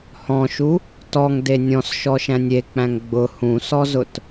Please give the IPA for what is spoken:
h ɔ̃ ʃ u | t ɔ ŋ d e nʲ ɔ̃ s ʃ ɔ ʃ æ̃ nʲ e k͡p æ̃ ŋ ɡ͡b ʊ h ũ s ɔ z ʊ t

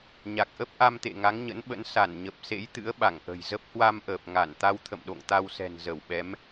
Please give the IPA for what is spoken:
ɲ a˨˩ k̚ ʔ ə˦˥ p̚ ʔ a˧ m t̪ ḛ˧˨ ŋ a˨˦ ŋ ɲ ə̰˧˥ n ɓ ə̰˧˥ n s a˧˩ n ɲ ə˨˩ p̚ s ḛ˧˥ j t̪ ɨ̰˧˥ ə̯ ɓ a˧˩ ŋ ʔ ə̤˨˩ j z ə˦˥ p̚ h w a˧ m ʔ əː˨˩ p̚ ŋ a˧˩ n t̪ a˧ w t̪ʰ ə̰˧˨ m ɗ o̰˧˨ ŋ t̪ a˧ w s ɛ̤˨˩ n z ə˧˩ w ɓ ɛ˨˦ m

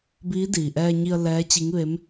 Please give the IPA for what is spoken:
b iː˧˥ d iː˩ ʔ ɛː˧ ɲ i˧ ə̯ l ɛː˧˥ t͡ɕ i˧˥ ŋ ʋ e˧˥ m

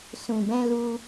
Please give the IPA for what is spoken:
s ũ˨ b ɛ̃˧ l u˧

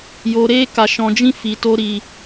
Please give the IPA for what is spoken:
j o˧ ɾ e˦ k a˧ ʃ ɔ̃˧ d͡ʒ ĩ˦ f i˧ t o˦ ɾ i˧

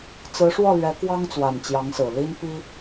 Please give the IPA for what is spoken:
t͡s ɹ̩˧˥ ʂ w ɔ˥˩ l ɥ ɛ˧˥ k w ɑ˥ ŋ t͡s w a˨˩ n t͡ɕ j ɑ˧˥ ŋ s ɹ̩˨˩ l i˥ n p i˥

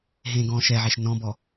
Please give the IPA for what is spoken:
ɦ ẽː ɡ ɔ̃ː ʃ ɛ ʕ e ʃ n ɔ̃ b ɔ

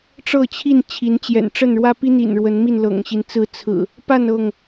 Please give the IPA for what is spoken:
ʈ͡ʂ ɤ˥˨ t͡ɕʰ i˥˨ n t͡ɕʰ i˨˦ n t͡ɕ j ɛ̰˨˩ n ʈ͡ʂ ə˥˨ n ɻ w ä˦ p i˦ n̪ ḭ˨˩ n ɻ w ə˨˦ n m i˥˨ n l ɤ̰˨˩ ŋ ɕ i˨˦ n t͡s ɹ̩˨˦ t͡sʰ ɹ̩˨˩ | p a˥˨ n ɤ˥˨ ŋ

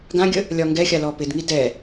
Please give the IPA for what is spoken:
ɡ ã ɡʲ ə | lʲ ɒ ŋ ɡ ɛ xʲ a l ɔ p ɪ d ŋ i d ɛ

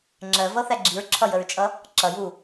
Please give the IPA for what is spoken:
ŋ͡ǁ ɜ v ʌ θ æ ɡ͡ǁ i ɹ ǁʰ ʌ j ə ɹ t͡ʃʼ ʌ | ǁ ʌ j u

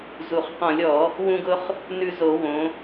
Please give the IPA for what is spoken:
z u˨˩ χ q ɔ̃˧˩˧ lʲ ɔ˧˩˧ | w ũ˧ ɡ ʊ˧ χ | n ʉ˧ z o˧˩˧ w õ˩˧

